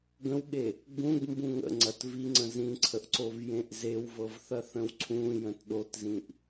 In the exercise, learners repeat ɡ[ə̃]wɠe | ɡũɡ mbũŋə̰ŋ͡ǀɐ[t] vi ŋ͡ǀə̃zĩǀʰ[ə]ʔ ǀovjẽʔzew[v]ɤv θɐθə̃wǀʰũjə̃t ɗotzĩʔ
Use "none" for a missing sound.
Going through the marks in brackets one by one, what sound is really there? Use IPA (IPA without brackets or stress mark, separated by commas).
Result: ə̃, t, ə, v